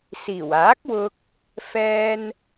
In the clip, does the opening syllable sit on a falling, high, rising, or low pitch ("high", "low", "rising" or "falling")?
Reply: low